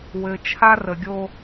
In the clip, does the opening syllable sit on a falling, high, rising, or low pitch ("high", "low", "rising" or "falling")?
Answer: low